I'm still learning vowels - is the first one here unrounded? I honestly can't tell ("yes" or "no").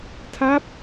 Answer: yes